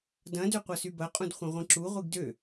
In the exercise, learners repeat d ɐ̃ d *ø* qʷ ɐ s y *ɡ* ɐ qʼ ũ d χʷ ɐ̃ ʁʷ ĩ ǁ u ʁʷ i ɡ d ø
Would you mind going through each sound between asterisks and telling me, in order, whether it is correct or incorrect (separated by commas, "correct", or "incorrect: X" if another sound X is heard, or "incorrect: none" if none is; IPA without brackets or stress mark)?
correct, incorrect: b